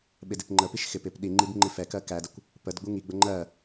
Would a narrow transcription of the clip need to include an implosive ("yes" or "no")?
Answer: yes